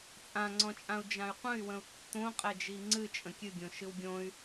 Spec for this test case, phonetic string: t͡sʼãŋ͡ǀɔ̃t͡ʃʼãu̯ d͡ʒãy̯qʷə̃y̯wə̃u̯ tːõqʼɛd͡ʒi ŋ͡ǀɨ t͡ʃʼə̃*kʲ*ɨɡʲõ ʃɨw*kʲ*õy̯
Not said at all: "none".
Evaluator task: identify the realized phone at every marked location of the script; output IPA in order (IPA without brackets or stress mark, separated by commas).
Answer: kʲ, ɡʲ